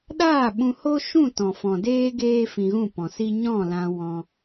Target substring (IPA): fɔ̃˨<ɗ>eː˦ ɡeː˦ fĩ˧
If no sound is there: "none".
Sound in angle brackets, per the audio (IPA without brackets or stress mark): d